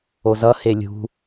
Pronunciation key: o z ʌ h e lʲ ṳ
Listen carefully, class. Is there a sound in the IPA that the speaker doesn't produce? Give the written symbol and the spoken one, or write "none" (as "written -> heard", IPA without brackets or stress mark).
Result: none